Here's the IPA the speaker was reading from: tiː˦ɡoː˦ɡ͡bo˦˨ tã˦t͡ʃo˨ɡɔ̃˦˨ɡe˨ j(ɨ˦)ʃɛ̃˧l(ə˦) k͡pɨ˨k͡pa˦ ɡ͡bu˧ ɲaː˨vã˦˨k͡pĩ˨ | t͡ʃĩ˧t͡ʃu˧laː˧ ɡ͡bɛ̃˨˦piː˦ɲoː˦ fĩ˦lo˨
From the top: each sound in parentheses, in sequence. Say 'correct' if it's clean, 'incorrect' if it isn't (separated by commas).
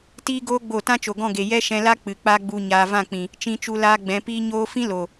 incorrect, incorrect